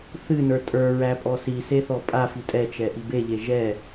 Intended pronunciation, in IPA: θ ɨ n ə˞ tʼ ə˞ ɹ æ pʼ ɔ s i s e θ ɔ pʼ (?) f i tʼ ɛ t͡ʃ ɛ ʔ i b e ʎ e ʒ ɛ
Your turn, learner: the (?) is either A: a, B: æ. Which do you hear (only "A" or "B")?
A